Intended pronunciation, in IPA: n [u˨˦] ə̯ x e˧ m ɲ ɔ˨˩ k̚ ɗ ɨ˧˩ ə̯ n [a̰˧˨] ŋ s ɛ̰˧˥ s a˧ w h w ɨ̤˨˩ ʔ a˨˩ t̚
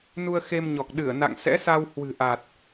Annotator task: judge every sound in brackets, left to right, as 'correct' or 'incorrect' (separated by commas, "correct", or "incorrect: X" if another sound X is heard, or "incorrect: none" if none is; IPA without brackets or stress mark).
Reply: incorrect: u˧, correct